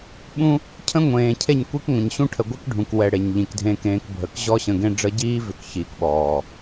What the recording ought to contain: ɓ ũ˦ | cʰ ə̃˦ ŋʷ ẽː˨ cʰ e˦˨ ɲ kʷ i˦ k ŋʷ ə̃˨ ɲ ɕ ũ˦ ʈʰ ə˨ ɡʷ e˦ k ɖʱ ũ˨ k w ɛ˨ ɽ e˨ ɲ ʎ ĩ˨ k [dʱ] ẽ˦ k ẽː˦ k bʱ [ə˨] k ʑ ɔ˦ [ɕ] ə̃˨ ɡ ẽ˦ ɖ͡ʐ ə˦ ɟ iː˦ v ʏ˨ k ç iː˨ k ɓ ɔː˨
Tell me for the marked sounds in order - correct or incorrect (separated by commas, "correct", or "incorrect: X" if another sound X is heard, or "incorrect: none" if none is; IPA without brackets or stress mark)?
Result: correct, correct, correct